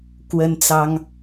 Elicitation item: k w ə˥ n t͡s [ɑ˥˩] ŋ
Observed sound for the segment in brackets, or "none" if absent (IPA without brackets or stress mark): ɑ˥